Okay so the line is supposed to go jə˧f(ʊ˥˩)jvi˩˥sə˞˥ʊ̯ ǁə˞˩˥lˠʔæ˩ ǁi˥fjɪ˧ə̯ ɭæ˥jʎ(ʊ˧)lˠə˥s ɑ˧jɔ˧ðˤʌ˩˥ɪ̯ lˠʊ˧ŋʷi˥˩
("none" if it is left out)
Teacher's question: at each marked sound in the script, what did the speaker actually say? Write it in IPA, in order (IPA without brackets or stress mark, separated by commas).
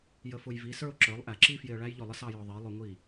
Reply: ʊ˧, ʊ˥˩